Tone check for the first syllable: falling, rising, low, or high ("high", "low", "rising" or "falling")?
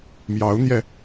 rising